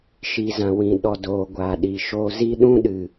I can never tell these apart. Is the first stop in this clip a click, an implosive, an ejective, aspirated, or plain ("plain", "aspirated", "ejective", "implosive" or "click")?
implosive